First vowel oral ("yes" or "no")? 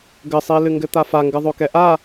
yes